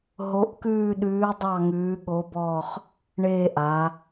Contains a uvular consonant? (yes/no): yes